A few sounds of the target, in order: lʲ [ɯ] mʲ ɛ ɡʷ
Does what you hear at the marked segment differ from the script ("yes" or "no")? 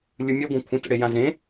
no